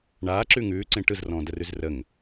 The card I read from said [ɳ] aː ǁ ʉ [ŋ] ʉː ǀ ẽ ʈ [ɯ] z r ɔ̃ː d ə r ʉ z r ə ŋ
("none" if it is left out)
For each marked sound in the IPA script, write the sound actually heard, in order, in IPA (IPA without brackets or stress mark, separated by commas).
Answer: ɳ, ŋ, ɯ